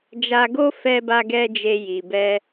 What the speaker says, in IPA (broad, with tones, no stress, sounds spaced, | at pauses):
d͡ʒ a˧ ɡ o˦ f ɛ˧ b a˧ ɡ ɛ˧ d͡ʒ e˧ j i˨ b ɛ˧